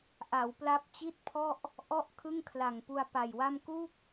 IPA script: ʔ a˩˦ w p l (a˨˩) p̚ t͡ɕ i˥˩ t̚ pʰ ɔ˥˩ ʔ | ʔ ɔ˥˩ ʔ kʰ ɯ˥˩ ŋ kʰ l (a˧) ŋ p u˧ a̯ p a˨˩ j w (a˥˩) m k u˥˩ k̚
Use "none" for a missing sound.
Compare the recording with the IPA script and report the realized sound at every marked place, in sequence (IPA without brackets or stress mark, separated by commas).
a˦˥, a˨˩, a˥˩